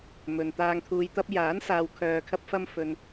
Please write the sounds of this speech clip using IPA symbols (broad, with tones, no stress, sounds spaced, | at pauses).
m ɵ˨ n t̪ aː˨ ŋ t̪ʰ uː˨ j t̪ ɐ˧ p̚ j aː˨˥ n s aː˨ w kʰ œː˨ kʰ ɐ˧ p̚ f ɐ˧ m f ɵ˨ n